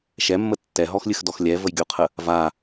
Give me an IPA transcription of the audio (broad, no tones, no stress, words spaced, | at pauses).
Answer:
ʃɛmːə tːɛɦɔxlʲɨxdɔx lʲɛvəjɡʲoqʰə | va